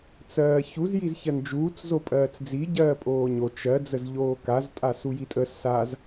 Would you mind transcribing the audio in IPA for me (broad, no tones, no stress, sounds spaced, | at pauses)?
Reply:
t͡s ɜː ç u z j i z ç ɜ n d͡ʒ uː t͡s z o pʼ ɜː t͡s d͡z i ɟ ɜː pʼ oː ɲ o t͡ʃ ɜ d͡z ə z ʎ oː k a z tʼ a s u j i tʼ ə s a z